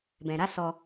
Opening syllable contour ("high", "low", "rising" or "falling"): low